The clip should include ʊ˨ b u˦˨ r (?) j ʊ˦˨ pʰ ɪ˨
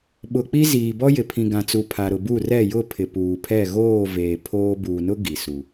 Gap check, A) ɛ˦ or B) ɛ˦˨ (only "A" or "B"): B